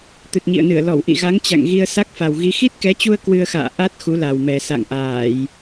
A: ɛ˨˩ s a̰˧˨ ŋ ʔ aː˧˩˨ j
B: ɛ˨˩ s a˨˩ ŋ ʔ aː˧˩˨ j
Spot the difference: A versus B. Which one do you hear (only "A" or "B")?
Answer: A